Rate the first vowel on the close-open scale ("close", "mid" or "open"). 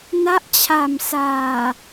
open